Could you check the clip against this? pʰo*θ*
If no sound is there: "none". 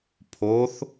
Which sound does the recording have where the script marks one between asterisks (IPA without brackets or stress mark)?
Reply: θ